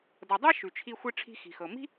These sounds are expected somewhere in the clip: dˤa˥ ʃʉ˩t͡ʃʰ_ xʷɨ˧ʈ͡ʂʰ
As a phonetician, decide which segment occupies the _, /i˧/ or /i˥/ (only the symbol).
i˧